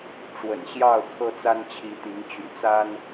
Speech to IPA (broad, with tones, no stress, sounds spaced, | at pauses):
ʈ͡ʂ w ə̰˨˩ n ɕ j ɑ˥˨ ʊ̯ kʰ ɤ˦ t͡s a˦ n t͡ɕʰ i˨˦ t̪ i˨˦ ŋ t͡ɕ y̰˨˩ t͡s a˦ n